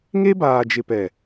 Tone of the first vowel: high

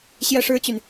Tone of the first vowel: high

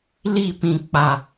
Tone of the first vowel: falling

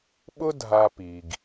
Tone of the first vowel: high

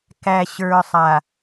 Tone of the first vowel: low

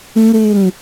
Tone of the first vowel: falling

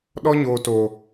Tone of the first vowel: high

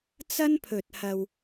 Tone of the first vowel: high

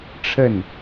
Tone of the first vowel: falling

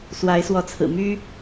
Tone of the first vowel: rising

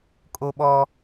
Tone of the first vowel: high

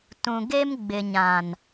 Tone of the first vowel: low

